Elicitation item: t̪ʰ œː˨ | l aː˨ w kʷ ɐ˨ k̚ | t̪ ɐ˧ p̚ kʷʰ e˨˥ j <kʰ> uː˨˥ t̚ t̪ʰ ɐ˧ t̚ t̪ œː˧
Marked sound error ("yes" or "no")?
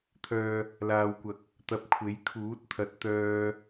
no